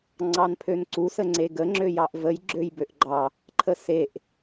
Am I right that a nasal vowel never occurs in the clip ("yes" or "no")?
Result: yes